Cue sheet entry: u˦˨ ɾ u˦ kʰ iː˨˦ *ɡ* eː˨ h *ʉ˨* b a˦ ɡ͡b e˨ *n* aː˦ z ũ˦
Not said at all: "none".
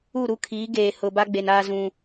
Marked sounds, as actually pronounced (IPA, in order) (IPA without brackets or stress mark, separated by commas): ɡ, ʊ˨, n